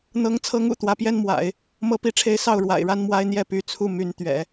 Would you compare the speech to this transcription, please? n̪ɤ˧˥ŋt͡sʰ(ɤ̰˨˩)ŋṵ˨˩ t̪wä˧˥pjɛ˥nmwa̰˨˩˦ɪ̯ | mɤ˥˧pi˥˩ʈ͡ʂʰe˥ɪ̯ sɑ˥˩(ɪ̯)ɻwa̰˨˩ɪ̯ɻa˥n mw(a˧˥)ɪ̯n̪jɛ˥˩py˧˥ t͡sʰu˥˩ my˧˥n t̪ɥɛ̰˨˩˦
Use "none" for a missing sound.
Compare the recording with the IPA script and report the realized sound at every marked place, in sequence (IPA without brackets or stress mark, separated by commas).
ɤ˧˥, ʊ̯, a˥